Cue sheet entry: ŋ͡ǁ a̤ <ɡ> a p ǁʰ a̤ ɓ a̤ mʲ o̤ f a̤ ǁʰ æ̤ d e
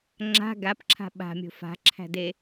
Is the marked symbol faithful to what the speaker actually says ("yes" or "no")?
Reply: yes